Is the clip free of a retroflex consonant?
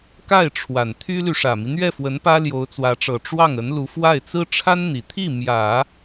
no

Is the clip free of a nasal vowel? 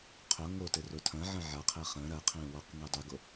no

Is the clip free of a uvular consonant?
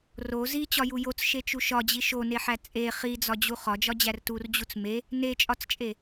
no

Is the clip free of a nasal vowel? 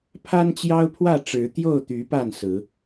yes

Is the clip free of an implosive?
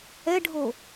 yes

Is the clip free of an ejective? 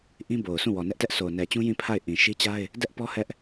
yes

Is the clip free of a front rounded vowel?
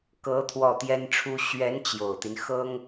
yes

